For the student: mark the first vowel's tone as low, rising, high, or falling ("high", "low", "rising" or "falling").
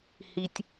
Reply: low